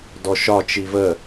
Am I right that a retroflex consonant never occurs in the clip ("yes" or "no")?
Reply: yes